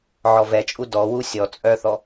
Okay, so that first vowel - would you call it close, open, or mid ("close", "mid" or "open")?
mid